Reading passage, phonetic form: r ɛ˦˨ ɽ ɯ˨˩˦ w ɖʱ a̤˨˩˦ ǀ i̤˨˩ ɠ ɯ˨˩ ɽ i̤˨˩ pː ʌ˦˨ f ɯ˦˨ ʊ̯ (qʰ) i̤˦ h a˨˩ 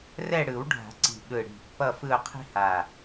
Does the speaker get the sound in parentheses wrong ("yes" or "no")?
no